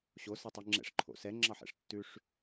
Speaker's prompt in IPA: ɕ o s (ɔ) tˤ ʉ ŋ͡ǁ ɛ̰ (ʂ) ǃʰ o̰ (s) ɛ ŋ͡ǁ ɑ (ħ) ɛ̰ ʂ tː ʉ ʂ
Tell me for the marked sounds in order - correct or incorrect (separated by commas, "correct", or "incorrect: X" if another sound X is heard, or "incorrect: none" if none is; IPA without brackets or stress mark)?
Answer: incorrect: ɑ, correct, correct, correct